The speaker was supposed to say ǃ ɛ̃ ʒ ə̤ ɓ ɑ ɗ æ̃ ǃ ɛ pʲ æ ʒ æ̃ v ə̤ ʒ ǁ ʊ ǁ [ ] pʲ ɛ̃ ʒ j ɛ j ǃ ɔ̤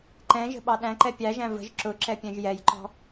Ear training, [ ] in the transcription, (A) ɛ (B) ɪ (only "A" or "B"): A